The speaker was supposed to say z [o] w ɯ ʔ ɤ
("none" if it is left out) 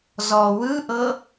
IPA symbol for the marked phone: ɔ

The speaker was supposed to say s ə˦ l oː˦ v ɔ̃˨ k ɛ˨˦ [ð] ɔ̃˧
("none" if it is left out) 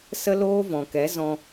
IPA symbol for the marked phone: z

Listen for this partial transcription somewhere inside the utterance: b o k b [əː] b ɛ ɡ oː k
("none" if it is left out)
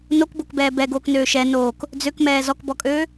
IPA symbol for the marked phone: ɛː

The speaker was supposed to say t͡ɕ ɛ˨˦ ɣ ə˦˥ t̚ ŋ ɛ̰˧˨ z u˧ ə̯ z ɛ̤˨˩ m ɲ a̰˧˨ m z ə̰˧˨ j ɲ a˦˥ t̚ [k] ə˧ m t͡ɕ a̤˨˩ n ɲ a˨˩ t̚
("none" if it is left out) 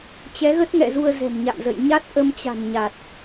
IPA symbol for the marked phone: ʔ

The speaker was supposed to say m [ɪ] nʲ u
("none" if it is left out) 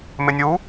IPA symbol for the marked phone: ɪ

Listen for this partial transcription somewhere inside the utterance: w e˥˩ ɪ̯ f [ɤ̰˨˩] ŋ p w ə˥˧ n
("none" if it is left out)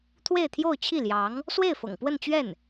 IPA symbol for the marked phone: ɤ̰˨˩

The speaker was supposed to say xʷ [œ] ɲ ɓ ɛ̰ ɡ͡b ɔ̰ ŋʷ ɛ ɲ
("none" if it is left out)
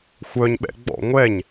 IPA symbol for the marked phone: œ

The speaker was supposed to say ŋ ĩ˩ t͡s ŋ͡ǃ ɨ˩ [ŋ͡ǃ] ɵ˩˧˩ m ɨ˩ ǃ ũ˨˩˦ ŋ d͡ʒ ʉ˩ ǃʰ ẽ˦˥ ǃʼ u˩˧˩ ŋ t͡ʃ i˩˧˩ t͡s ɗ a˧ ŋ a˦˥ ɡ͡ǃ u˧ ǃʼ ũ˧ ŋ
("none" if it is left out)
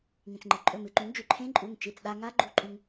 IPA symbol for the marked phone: ǃʼ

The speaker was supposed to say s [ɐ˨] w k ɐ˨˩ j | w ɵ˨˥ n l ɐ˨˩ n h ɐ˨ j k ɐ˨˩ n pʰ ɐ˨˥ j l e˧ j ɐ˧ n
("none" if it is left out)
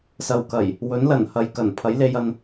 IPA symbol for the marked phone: ɐ˨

